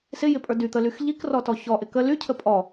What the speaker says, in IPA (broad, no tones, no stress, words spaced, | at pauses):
sɪjɪpʼə˞ dyt̪əlyx ʎikrɔtɔ çɔʔɪ kə lycʰə pʼɔ